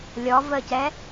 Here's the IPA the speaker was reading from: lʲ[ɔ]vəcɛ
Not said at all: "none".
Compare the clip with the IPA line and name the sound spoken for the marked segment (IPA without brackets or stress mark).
ɔ